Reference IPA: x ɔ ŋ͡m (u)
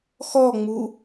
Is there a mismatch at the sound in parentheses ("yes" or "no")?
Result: no